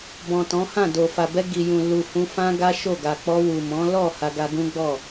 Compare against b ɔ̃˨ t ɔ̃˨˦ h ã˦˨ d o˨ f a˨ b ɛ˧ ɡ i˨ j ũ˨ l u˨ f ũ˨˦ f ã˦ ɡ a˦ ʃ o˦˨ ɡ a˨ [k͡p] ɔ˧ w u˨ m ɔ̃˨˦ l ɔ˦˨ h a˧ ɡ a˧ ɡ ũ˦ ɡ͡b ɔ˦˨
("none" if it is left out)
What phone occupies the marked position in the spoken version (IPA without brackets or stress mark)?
k͡p